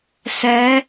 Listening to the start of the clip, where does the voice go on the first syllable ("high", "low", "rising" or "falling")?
rising